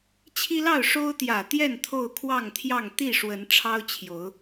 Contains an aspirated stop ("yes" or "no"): yes